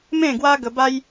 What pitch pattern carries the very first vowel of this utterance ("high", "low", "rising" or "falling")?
falling